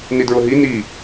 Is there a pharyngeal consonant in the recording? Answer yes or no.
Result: no